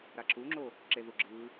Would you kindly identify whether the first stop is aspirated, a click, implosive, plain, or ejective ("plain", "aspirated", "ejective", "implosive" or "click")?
click